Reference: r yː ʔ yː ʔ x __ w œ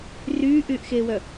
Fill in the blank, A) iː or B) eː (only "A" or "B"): B